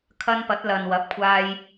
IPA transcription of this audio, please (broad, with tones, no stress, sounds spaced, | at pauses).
kʰ ɐ˧ n p ɐ˨˥ t̚ l ɐ˨ n w ɐ˨˥ p̚ kʷʰ aː˧ j